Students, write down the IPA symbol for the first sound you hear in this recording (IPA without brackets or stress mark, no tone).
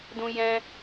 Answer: d